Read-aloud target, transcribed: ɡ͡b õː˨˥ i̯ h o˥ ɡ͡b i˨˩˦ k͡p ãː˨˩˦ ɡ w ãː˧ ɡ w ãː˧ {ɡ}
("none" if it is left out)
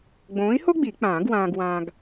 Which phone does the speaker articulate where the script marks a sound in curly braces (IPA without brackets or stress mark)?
ɡ